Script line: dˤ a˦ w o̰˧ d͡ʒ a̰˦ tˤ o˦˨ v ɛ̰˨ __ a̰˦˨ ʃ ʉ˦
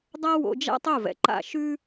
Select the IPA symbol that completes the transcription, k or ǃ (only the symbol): ǃ